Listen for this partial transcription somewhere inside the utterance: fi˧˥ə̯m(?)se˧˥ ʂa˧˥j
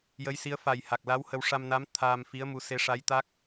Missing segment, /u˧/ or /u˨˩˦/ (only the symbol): u˧